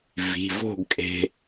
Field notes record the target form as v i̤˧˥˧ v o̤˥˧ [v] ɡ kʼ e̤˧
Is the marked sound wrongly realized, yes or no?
yes